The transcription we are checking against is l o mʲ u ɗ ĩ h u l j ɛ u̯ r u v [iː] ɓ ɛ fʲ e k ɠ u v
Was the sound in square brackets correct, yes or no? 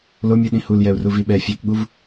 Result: no